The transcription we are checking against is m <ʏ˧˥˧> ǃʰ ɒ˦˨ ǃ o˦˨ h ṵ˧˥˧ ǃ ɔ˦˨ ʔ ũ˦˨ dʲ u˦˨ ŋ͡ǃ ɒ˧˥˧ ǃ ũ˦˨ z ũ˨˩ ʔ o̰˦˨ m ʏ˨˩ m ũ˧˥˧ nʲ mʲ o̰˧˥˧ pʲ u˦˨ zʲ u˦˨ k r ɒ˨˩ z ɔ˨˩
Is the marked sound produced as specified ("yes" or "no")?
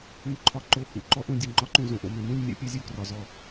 no